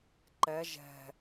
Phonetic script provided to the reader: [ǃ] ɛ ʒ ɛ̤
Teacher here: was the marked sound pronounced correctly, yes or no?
yes